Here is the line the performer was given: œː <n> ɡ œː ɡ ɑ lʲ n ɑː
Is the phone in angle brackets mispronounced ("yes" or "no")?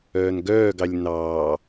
no